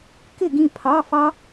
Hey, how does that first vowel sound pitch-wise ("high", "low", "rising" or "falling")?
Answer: falling